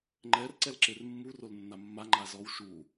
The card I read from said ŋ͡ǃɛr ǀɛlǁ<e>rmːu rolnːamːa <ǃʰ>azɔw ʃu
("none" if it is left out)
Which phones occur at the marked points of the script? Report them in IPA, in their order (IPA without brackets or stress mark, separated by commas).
e, ŋ͡ǃ